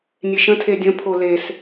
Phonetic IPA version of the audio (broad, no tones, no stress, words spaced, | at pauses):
nʲeʃə̃ tʰedʲə̃ pʰoles